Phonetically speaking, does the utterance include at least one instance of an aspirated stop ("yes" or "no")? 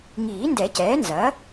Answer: no